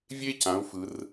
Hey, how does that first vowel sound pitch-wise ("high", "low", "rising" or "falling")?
high